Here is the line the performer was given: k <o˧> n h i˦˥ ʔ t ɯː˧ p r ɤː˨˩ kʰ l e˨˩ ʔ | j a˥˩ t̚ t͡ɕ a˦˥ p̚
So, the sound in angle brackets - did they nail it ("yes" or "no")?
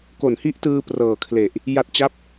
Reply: no